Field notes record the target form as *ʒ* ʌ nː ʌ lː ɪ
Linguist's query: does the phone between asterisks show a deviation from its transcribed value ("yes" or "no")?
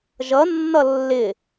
no